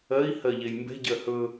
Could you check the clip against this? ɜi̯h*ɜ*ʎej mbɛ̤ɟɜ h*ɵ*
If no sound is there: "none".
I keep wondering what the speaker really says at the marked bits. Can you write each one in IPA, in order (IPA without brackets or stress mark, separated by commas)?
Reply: ɜ, ɵ